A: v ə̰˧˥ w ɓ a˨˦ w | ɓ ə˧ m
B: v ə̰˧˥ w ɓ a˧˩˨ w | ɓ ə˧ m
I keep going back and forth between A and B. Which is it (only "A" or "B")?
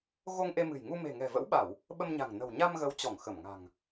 B